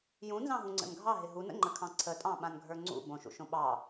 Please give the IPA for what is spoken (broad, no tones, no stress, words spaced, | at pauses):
jũnzɑ̃ɦũŋ͡ǀə̰n ɡʱɑɦɪ ɦunə̰ŋ͡ǃəkʰɑ̃ ǀʰətʼɑ̃ɓãnɡʱə˞ ŋ͡ǀṵ bõʃṵʃõ ɓɑ